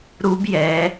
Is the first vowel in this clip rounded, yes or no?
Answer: yes